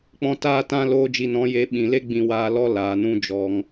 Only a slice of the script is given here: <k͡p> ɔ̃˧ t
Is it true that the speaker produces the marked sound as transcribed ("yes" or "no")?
yes